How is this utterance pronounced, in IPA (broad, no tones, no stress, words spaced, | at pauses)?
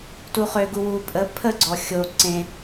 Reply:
tuχøɡu wu pʼə pʰəɡ͡ǀɔ xʲo ǀẽ